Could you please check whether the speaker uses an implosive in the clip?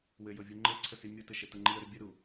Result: no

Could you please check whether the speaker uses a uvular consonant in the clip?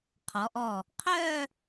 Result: yes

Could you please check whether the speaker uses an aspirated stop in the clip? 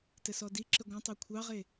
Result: yes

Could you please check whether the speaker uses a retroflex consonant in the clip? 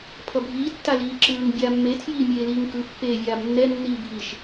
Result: no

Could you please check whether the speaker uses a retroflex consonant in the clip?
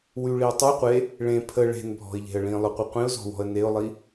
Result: yes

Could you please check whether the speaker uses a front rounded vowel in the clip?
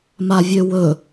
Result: yes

